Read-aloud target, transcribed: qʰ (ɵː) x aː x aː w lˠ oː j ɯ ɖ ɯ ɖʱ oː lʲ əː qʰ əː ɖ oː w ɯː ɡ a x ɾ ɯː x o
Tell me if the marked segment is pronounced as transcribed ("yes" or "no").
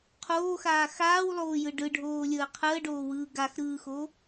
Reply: no